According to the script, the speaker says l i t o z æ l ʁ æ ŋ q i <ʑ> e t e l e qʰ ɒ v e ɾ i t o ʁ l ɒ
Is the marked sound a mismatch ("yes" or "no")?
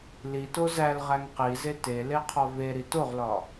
yes